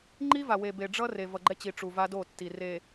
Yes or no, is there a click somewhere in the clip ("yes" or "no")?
yes